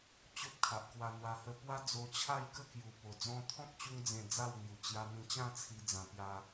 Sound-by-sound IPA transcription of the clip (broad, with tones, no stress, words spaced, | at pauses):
t͡ɕo˦p̚kʰa˨ʔkwa˧n̪wa˧ hə˦ pwa˦d͡zo˧t͡ɕʰa˥˧jkə˥˧ kju˨˩ po˨˩d͡zɔ̃˥˧ t̪ʰɔ̃˦k̚t͡ɕu˧ŋd͡zẽ˨˩ d͡za˥˧wn̪ju˨˩ t͡ɕja˧n̪ĩ˧t͡ɕã˥˧ t͡sʰi˧d͡zã˨˩ pja˧